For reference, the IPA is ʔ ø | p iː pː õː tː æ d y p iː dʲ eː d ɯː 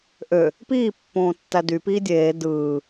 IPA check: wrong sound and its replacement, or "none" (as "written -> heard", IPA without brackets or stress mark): none